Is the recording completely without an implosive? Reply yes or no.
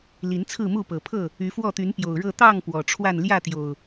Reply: yes